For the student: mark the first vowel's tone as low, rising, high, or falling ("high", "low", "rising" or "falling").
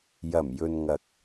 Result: low